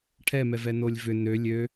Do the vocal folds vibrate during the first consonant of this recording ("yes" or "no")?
no